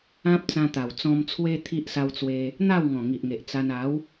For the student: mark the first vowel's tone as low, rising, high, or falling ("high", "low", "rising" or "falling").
high